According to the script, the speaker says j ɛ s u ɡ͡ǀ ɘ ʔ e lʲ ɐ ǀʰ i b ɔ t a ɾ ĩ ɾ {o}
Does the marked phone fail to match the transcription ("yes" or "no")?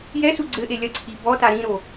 no